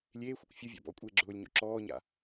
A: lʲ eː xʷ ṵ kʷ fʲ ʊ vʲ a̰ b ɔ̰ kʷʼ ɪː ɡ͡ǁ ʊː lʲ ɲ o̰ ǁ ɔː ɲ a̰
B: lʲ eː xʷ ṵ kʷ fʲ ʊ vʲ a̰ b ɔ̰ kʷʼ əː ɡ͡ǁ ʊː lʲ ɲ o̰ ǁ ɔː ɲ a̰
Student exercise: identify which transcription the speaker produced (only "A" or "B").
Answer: A